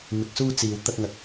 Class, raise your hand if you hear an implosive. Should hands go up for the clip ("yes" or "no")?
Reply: no